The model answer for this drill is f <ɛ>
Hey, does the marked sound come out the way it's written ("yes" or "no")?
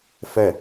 yes